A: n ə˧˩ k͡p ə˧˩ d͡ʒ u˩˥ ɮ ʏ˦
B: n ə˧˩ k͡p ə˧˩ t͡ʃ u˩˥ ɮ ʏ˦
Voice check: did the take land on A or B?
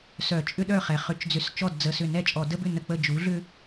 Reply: A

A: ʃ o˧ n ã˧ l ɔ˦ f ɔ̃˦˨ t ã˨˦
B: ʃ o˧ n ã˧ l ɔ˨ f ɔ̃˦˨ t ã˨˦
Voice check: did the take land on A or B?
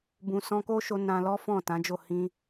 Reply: A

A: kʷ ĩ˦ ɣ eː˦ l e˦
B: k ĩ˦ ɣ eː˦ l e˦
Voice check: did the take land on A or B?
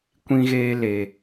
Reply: A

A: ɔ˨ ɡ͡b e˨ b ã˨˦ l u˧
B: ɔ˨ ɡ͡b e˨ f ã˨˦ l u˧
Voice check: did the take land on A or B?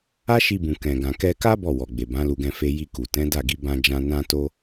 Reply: A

